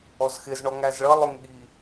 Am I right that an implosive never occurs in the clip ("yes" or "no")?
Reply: no